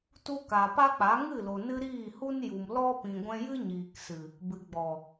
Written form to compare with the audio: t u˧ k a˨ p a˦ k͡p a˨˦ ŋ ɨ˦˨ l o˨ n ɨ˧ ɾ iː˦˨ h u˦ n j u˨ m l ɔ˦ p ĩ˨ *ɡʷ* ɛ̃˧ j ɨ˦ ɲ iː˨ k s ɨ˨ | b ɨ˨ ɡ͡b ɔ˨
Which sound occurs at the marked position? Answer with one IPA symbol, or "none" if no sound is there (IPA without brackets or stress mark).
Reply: ɡʷ